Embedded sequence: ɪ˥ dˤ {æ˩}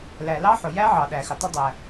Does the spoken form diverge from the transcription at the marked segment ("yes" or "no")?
no